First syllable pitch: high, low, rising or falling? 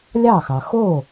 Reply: falling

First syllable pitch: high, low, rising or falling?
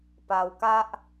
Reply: low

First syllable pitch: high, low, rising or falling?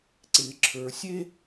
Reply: low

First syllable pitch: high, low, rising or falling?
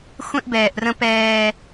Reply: high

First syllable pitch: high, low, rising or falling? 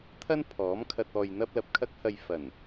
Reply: high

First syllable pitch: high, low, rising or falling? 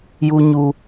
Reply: high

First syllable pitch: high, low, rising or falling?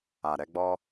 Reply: low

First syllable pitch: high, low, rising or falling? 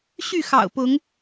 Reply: falling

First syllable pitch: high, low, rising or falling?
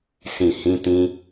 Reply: low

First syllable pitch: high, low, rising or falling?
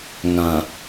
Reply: low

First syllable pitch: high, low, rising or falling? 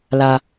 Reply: low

